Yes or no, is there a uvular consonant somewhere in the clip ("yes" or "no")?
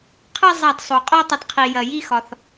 yes